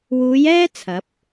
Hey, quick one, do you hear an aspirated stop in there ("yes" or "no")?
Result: yes